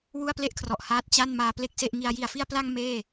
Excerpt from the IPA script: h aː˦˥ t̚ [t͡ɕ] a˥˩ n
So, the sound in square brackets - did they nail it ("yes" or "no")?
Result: yes